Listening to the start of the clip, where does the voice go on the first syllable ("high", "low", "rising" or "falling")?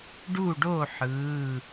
falling